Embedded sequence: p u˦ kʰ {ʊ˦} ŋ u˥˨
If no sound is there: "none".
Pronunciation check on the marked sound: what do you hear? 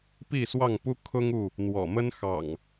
ʊ˦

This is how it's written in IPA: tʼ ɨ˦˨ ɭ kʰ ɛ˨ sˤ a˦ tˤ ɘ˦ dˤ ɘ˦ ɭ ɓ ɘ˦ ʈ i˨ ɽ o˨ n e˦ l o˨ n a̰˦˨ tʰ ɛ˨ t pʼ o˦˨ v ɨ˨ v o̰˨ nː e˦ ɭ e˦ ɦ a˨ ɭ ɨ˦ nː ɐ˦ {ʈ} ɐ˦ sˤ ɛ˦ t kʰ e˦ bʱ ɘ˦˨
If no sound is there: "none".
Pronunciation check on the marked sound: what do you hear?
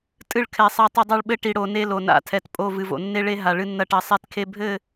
ʈ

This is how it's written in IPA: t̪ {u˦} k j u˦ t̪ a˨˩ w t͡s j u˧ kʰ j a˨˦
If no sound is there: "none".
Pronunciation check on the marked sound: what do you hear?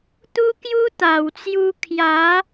u˦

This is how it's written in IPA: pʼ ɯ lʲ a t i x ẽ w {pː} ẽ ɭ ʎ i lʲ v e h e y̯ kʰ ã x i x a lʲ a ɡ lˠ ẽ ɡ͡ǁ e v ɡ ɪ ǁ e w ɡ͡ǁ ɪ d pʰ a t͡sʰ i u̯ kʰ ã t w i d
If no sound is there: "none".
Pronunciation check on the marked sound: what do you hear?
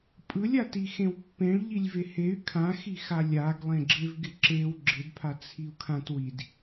pː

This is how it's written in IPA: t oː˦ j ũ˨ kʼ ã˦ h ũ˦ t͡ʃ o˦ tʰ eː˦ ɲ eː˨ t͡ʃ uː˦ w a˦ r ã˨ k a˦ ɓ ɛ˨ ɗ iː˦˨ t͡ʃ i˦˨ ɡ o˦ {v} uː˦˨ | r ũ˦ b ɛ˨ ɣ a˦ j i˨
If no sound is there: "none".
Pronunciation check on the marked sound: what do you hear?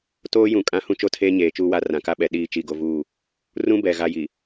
v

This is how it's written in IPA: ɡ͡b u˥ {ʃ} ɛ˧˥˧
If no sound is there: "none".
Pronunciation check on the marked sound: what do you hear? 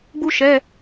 ʃ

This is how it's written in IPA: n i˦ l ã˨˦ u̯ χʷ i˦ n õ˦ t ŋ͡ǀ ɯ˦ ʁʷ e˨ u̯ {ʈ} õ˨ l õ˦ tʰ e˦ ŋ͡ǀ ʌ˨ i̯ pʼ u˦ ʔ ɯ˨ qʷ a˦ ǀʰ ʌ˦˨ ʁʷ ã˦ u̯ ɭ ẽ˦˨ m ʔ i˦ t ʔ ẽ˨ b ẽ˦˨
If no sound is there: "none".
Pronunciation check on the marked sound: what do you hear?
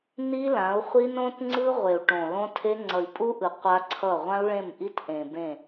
ʈ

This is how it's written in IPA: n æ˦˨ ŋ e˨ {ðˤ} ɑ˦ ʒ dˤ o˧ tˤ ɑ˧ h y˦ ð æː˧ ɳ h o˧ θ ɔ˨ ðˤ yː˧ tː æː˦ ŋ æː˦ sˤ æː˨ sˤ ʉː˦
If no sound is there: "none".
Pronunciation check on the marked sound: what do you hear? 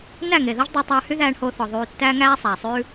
ð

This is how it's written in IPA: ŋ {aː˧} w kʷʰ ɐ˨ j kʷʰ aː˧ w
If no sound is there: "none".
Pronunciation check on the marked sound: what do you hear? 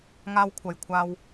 aː˧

